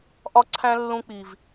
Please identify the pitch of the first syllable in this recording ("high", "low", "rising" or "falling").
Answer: high